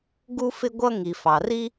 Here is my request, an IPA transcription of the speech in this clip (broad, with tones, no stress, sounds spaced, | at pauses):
ɡ u˥ f ɪ˥ ɡʷ ʌ˥ ŋ i˩ f ɑ˩ r i˥